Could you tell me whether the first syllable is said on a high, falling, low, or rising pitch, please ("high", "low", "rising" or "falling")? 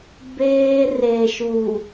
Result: high